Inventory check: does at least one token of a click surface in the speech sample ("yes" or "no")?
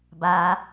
no